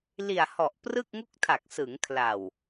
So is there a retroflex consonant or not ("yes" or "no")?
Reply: no